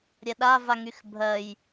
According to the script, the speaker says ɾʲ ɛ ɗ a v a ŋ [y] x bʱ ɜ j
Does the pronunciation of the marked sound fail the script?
no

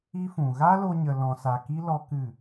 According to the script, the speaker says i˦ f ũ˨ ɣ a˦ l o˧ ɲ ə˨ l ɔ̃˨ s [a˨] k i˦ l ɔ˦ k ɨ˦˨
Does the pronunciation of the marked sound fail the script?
no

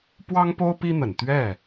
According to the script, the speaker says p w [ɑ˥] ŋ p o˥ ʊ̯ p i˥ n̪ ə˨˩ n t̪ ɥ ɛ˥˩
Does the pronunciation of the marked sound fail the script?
no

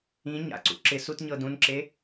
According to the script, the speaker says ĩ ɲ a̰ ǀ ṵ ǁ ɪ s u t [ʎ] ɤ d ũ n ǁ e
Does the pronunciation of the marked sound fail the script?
yes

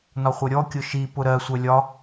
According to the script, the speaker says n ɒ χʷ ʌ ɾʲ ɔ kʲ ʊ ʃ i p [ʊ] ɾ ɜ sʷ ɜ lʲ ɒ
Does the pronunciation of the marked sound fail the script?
no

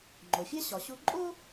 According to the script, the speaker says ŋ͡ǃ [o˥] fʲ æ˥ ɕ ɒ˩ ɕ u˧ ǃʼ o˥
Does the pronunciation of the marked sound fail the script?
yes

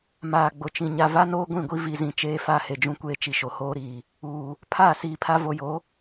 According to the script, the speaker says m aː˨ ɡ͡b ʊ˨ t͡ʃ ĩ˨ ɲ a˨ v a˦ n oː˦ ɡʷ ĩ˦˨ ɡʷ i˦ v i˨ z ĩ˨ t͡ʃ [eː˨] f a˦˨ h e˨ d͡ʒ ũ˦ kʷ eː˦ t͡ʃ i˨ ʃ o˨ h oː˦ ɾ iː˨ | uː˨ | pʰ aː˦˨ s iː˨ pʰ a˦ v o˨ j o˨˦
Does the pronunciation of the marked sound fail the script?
yes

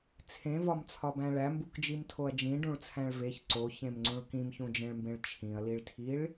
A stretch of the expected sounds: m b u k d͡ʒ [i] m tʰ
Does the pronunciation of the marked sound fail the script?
no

